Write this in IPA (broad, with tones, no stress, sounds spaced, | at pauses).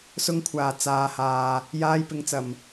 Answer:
s ʊ˧ ŋ kʷʰ aː˨˩ t͡s aː˨ h aː˨ | j aː˧ j p ɪ˨˧ ŋ t͡s ɐ˨˩ m